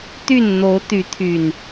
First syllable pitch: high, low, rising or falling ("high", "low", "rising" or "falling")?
falling